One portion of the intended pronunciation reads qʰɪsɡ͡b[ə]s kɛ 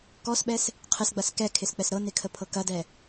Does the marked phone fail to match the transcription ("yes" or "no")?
yes